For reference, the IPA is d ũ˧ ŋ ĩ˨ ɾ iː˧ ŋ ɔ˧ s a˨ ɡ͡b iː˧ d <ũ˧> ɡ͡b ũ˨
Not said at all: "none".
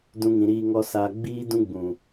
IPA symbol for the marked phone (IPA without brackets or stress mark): ũ˧